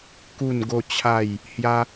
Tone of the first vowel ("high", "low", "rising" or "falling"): falling